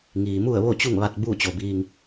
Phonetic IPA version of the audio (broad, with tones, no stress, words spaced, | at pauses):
ŋiː˩mu˥˨ə̯ ʋo˥˨t͡ɕu˥˨ŋʋa˧t̚ buː˥˨t͡ɕo˩biː˧ŋ